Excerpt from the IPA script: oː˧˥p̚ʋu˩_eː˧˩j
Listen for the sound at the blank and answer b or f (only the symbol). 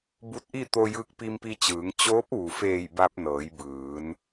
f